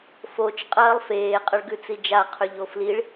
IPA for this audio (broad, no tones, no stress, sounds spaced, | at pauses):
f o t͡ʃ qʼ ɐː lˠ f eː qʼ ɐ ɭ ɡ ʉ t͡s i d͡ʒ a qʰ ʉ ʎ o f l i ɭ